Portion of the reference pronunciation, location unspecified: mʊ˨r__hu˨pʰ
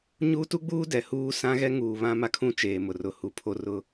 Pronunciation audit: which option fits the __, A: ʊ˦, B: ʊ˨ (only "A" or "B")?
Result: B